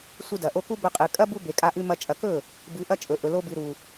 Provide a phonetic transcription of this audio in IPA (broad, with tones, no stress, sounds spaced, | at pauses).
sʷ ɨ˧ d ɐ˨ ʔ o˧ k u˦ b ɵ˧ qʼ ɨ˨ kʼ ɐ˦ b u˦ b e˨ kʼ a˧ ʔ ʉ˧ m ɐ˧ t͡ʃʼ ɐ˨ k ɵ˦˨ | b ɨ˨˦ ʔ ɐ˦ t͡ʃʼ ɵ˨ ʔ ɵ˨ l o˧ b ɨ˨ ɾ u˨